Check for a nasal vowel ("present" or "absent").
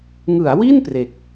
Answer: absent